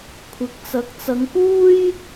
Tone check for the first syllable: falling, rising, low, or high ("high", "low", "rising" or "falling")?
rising